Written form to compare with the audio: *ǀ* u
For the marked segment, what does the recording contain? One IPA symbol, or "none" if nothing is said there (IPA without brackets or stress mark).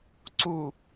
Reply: ǀ